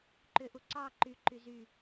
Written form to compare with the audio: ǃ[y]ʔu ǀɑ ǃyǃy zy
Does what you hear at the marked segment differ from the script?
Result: yes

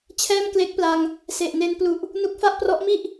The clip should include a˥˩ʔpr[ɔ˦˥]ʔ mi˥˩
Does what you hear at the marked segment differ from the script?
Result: no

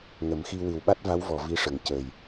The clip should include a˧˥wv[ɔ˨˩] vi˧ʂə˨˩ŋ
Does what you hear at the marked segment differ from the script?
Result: no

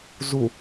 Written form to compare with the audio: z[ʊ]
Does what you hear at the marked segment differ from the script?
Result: yes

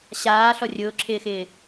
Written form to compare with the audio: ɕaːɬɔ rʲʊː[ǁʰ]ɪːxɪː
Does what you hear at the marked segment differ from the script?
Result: no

